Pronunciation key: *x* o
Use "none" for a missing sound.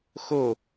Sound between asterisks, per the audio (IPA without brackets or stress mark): x